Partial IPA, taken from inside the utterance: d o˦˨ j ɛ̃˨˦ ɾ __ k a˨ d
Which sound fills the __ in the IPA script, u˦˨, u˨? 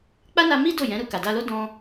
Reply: u˦˨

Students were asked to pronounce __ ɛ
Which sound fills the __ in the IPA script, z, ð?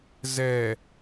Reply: z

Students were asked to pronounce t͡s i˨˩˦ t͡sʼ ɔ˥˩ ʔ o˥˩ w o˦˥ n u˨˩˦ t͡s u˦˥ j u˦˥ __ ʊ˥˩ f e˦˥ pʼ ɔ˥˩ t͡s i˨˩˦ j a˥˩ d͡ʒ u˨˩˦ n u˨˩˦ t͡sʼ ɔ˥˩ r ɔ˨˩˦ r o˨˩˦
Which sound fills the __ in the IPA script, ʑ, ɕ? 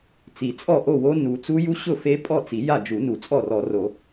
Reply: ɕ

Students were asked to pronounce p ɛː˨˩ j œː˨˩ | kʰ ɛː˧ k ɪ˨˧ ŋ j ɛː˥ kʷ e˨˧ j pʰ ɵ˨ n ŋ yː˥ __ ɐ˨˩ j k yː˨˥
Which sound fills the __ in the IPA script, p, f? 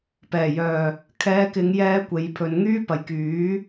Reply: p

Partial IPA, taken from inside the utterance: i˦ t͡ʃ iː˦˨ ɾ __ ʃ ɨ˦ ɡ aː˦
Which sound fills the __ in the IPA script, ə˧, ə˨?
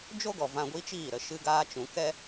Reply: ə˨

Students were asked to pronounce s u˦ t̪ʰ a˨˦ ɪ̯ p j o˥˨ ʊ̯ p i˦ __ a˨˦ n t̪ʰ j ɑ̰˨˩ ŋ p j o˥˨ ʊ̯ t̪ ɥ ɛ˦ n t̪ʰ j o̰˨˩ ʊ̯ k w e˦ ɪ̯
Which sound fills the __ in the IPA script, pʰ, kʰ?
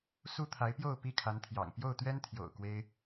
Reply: kʰ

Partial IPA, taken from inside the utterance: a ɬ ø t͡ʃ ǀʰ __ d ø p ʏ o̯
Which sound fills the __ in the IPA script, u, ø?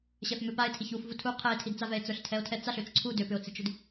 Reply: u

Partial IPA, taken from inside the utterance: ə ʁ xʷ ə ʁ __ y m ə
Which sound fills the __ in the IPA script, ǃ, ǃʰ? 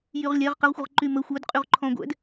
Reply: ǃ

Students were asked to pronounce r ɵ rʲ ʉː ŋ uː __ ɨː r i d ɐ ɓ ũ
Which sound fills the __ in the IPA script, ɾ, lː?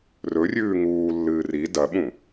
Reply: lː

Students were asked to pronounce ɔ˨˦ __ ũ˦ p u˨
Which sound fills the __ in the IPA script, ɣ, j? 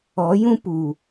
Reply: j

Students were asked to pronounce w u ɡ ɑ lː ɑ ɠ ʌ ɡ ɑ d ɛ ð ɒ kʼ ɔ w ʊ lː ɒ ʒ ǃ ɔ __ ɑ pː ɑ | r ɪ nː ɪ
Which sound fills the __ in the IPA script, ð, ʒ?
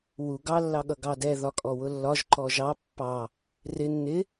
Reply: ʒ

